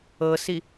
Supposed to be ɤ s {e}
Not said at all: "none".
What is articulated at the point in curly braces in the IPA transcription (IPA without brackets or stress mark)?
i